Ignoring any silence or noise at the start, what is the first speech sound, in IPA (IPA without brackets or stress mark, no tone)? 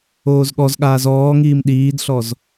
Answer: oː